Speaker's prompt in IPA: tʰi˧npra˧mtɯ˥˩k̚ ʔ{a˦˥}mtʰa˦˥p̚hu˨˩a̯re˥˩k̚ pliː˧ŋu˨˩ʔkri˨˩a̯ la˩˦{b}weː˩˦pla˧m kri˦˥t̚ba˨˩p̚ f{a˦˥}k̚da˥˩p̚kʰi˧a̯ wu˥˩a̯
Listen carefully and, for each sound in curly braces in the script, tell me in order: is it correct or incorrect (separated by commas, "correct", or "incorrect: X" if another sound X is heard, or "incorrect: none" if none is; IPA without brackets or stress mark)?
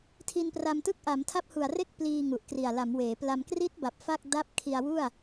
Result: incorrect: a˩˦, incorrect: m, incorrect: a˥˩